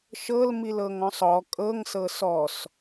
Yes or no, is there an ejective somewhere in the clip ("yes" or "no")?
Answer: yes